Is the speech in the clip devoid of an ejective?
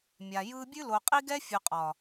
no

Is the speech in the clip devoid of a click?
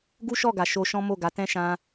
yes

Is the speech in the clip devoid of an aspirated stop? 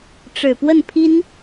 no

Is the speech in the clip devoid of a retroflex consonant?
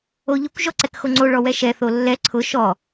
no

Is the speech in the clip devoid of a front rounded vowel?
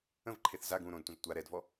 yes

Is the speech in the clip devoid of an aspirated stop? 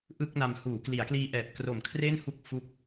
no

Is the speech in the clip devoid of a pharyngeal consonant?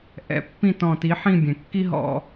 no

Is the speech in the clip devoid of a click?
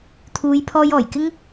yes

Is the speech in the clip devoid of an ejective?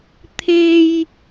yes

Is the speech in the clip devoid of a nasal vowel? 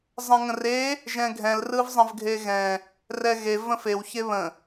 no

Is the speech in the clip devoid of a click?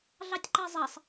no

